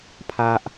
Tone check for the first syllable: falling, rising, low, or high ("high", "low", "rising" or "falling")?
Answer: high